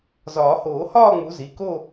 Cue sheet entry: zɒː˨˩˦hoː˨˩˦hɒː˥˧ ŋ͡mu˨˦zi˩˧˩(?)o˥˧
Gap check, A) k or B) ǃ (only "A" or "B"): A